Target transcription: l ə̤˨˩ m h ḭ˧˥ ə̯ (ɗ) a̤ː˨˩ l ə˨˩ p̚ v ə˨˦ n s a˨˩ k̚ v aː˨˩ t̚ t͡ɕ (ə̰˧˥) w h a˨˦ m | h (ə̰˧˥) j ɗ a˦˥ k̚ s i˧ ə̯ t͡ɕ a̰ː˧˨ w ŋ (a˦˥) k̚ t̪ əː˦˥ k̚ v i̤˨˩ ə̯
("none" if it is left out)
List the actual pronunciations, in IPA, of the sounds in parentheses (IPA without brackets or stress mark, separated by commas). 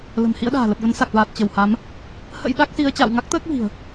ɗ, ə˧˩, ə̰˧˥, a˦˥